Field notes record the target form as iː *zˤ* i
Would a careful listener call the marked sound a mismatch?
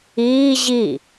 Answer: yes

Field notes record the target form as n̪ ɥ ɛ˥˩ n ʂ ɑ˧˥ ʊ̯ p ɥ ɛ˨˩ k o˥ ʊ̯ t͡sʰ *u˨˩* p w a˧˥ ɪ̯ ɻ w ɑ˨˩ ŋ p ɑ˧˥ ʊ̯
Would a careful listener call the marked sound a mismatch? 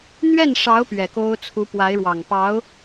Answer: yes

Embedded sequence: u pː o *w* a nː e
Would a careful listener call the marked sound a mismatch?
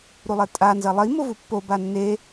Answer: yes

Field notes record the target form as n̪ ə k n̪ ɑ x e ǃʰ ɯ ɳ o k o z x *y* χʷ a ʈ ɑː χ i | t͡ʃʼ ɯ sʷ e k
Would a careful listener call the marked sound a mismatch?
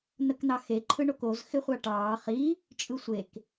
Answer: yes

